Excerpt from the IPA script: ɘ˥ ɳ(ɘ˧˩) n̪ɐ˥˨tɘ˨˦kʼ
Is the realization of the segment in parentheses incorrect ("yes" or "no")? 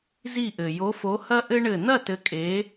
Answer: no